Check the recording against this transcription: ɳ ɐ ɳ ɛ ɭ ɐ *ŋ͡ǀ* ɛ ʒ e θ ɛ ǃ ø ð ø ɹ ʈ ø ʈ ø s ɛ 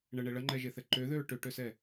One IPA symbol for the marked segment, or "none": ŋ͡ǃ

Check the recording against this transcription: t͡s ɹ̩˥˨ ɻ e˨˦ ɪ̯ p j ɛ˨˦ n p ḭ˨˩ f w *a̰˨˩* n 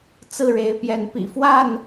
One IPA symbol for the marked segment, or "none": a˥˨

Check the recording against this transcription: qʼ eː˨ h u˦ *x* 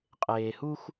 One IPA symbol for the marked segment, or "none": x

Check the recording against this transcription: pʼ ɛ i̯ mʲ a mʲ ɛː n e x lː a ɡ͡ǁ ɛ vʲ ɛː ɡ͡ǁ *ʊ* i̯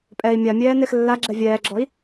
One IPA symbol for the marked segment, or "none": ɔ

